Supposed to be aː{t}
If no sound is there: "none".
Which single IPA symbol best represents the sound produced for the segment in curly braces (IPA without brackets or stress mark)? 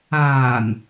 n